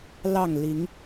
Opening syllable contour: falling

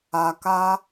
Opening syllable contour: low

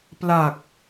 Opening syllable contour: low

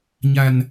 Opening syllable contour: low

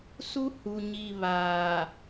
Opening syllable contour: high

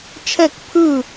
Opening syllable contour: falling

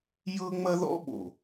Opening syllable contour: high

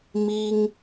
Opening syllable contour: high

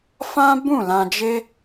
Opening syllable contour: high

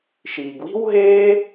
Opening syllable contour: low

